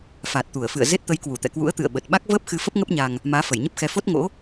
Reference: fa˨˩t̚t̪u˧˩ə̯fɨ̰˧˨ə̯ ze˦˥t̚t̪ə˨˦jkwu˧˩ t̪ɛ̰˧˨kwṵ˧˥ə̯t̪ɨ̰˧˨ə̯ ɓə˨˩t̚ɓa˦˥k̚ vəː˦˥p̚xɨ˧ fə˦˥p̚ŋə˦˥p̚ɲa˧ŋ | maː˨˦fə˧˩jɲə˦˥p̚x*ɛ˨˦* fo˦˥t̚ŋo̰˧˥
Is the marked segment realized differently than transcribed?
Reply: no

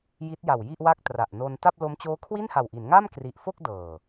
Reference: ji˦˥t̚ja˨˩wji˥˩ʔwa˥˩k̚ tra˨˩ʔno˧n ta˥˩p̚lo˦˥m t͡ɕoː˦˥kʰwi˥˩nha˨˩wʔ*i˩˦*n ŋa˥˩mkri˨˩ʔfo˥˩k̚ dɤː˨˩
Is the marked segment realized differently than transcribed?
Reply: no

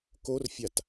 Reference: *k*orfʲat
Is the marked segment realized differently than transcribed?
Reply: no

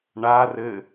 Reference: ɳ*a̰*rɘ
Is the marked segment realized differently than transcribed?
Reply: yes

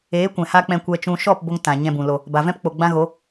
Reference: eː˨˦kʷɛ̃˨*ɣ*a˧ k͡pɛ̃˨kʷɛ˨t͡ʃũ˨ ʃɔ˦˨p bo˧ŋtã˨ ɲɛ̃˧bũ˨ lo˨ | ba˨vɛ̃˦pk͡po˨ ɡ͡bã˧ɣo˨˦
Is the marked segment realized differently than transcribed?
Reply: yes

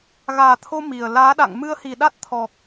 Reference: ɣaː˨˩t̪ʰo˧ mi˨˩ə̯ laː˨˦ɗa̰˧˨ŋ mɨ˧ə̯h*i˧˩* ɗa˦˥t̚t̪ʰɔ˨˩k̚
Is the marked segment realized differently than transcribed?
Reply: yes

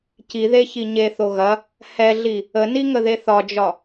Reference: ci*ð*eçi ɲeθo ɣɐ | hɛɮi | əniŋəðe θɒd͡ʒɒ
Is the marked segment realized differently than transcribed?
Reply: no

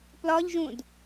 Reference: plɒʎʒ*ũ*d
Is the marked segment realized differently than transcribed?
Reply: no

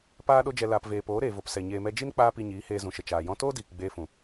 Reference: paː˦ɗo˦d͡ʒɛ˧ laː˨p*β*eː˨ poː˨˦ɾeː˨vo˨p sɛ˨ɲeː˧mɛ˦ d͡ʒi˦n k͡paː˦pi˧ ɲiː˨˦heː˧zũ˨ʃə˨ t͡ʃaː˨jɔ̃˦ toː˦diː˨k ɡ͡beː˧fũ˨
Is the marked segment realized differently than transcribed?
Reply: yes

